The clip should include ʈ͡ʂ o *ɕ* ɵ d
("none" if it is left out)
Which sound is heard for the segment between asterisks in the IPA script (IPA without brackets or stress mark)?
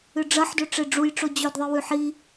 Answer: d͡ʑ